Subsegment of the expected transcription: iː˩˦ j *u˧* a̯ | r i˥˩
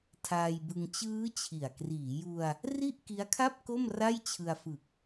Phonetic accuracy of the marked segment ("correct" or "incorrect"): correct